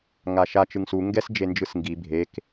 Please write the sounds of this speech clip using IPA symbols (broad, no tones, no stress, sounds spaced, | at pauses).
ŋ a ʃ a t͡ʃ ɯ ŋ s u ŋ ɡ ɛ s d͡ʒ e n d͡ʒ ɯ s ŋ ɡ i bʱ e k